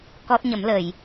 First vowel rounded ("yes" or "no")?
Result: yes